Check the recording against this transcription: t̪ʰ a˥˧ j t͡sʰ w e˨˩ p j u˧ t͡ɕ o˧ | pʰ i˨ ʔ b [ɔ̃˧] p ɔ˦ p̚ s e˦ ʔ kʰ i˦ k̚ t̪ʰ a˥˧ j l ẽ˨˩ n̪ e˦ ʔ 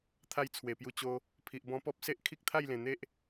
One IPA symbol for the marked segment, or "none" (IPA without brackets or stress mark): ɔ̃˧